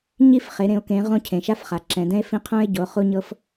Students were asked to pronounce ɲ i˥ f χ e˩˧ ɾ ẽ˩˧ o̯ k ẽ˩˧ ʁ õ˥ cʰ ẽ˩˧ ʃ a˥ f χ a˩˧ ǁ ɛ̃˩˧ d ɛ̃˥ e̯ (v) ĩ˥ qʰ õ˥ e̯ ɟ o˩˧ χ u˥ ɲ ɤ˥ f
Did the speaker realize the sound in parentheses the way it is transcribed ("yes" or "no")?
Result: no